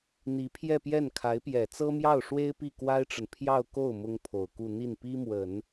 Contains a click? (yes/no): no